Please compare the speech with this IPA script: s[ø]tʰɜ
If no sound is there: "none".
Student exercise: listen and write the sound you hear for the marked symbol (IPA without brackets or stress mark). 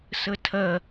ə